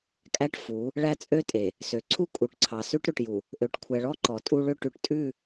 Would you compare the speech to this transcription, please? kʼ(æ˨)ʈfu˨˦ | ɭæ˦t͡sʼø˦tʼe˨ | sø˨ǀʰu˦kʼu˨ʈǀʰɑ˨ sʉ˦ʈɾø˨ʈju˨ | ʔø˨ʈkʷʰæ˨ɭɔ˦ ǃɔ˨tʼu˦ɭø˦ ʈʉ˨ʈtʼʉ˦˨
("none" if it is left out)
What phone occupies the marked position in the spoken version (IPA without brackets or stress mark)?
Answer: æ˦